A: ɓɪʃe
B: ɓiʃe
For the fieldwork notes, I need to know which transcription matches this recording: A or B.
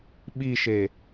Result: B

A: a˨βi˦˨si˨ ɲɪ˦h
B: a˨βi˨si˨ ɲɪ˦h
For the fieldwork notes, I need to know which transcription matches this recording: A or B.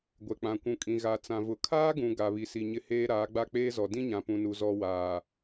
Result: B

